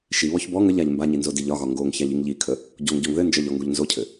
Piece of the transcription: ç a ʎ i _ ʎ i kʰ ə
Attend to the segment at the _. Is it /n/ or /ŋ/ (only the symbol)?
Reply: ŋ